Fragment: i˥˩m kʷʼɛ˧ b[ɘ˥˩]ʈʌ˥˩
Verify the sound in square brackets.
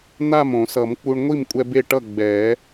incorrect: e˥˩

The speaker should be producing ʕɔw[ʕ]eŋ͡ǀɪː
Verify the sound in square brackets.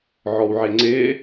correct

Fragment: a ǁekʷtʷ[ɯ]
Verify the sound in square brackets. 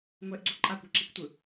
correct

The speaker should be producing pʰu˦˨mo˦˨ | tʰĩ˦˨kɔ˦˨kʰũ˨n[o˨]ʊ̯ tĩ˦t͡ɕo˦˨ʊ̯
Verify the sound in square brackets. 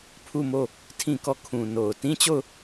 correct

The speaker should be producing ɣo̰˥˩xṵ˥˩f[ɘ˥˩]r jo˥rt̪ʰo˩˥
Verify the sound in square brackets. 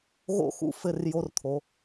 correct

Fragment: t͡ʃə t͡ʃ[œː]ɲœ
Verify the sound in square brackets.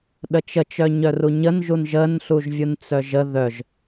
incorrect: œ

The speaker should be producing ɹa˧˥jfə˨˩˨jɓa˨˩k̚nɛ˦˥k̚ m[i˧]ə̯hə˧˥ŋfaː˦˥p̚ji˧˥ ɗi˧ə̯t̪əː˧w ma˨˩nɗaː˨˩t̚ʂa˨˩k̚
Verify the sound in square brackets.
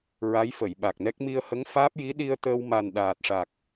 correct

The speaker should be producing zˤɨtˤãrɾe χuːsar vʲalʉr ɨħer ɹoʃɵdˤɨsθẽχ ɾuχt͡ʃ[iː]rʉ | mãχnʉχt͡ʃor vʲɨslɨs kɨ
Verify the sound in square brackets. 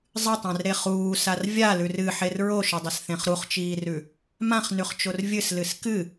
correct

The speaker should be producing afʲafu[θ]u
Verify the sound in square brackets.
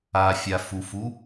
incorrect: f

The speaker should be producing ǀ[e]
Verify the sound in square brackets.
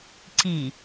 incorrect: i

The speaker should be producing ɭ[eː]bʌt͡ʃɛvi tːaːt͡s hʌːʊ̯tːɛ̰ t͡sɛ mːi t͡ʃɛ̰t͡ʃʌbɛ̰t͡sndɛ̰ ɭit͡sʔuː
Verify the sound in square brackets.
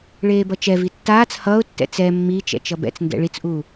correct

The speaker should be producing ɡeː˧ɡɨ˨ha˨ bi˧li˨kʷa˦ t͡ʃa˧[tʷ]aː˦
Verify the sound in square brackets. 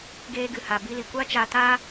incorrect: t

